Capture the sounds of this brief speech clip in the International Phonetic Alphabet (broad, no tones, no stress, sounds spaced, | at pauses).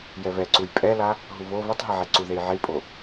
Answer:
j ɛ β ɛ ǀ u j pʼ ɛ l a | ɦ u β o β ɛ tˤ ɦ e ʕ e ǀ u ð e j ʕ i pʼ o